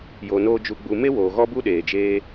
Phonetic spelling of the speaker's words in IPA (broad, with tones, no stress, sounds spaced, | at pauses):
j o˧ n oː˦ d͡ʒ u˧ ɡ͡b u˧ m e˦ w oː˨ ɣ ɔ˦ b u˦ ɗ eː˨ d͡ʒ eː˦